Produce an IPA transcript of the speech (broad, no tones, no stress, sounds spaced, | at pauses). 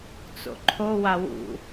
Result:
t͡s o̰ ǃʰ o w a w ṵ